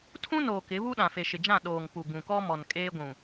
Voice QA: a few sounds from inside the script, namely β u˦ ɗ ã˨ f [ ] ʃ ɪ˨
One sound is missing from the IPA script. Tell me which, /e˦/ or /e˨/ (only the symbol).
e˨